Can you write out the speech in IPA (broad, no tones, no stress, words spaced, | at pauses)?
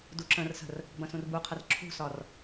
duǁə̃rsə̤r | bɐ̃sũrbuqʰɐr ǁʰṳsɒr